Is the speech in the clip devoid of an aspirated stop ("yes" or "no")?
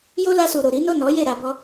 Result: yes